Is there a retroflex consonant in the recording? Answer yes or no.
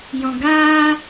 no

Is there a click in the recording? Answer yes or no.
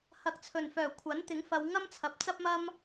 no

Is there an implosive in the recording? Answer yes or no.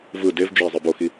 no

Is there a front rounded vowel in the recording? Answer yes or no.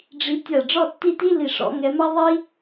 no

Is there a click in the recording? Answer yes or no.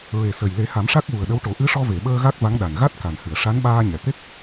no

